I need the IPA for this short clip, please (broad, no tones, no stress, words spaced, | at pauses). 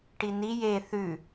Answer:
ʈini je θʉ